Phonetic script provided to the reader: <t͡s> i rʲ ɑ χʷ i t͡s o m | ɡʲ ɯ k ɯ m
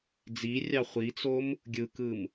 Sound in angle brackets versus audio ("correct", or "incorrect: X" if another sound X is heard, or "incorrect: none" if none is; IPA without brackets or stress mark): incorrect: d͡z